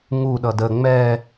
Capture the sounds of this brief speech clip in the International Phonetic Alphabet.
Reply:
ŋ u ɗ ʌ d ə ŋ͡m ɛ

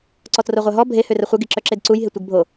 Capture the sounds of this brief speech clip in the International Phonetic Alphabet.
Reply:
ǀ ɔ t r o ʁʷ œ ɦ ɔ bʱ e h ø r ə χʷ ɪ ɡ i ǁ œ ǁ e d ǀ u j ɦ ɪ tʷ e ɡ bʱ o

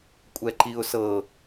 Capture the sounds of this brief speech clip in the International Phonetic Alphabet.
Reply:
kʷʼ ɛ ǃ i ʊ̯ s ɤ

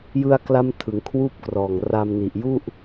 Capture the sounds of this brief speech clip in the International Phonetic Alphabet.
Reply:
j ɯ˧ a̯ k l a˦˥ m tʰ ɯ˩˦ ŋ kʰ w uː˥˩ p̚ k r ɔː˨˩ ŋ r a˧ m n i˨˩ ʔ j u˥˩ ʔ

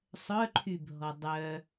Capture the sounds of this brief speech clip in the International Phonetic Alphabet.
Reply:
sˤ œ ǃʰ y bʱ ɔ dˤ œ

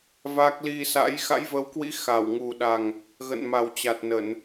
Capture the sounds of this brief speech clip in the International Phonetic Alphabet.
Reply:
v a˦˥ k̚ l i˧ s a̰˧˥ j x a̰˧˥ j v ə˨˦ w k w ḭ˧˥ x a˧˩ w ŋ u˨˩ ɗ a˨˩ ŋ | ɣ ə̰˧˨ n m a˨˩ w t͡ɕ a˨˩ t̚ n ə˧˩˨ n

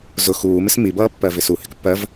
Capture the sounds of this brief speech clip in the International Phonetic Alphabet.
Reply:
z ʊ x uː m ɪ s m i b ʌː pː ɜ v ɪ s u h ɪ k pː ɜ v

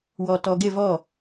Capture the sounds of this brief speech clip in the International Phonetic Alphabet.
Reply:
w ɔ t ɔ ɡ ɪ v ɔ

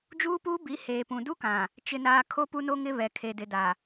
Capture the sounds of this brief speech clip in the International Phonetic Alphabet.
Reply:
d͡ʒ uː˦ p uː˦ b i˨˦ h eː˨ p ũ˨ d u˦ k ã˨ | t͡ʃ ɪ˨ n aː˨ kʰ o˦ p u˦ n o˦ ŋ ɪ˦ β ɛ˨ kʰ e˨ d ɪ˨ d a˨

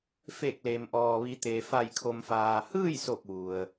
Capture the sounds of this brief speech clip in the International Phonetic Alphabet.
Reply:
f e˧˩ k̚ l e˩ m ʔ ɔː˩ ʋ i˩˧ t̪ eː˩ f a˧˩ j kʰ o˩ m f aː˩ h ɯː˥˨ j s o˧˩ k̚ ʋ u˩ ə̯

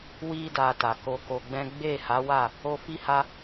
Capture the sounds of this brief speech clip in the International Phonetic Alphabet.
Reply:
w i˧ d a˨ t a˨ k o˧ k o˧ ɡ͡b ɛ̃˦ ɡ͡b e˦˨ h a˨˦ w a˦˨ | o˧ f i˦ h a˦

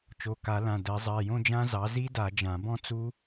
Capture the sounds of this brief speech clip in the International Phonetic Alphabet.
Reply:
t͡ʃ o˩˧˩ k a˨˩˦ l ã˩˧˩ d ɜ˨˩˦ zˤ ɜ˩˧˩ j õ˥˧ d͡ʒ ã˦˥ z ɑ˩˥ z i˦˥ d a˨˩˦ d͡ʒ ã˨˩˦ b ɔ̃˥˧ t͡s u˦˥

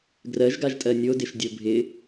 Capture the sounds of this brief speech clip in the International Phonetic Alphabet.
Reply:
ɡ r ɜ ʒ ɡ a ʒ tʼ ɜ nʲ o d ɪ ʃ dʲ o bʱ ɪ

